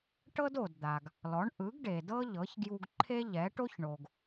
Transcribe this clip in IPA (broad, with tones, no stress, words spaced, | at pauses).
ʈɤ˥do˩dd̪a˩ɡ | lɔ˩˥ɳ ʔɯ˩˥ɡɖe˩dɤ˥ ʎɤ˩˥çɡju˧ɡ ǃʰe˥ʎɛ˩˥ ʈo˥çɳo˩ɡ